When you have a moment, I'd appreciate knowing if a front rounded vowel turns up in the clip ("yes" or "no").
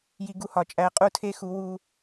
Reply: no